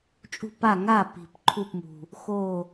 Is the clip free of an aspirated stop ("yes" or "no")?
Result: no